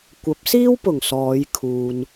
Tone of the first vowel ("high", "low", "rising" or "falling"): rising